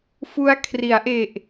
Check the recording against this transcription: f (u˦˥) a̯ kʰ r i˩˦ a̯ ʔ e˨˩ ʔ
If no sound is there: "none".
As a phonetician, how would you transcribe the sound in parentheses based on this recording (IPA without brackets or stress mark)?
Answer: u˦˥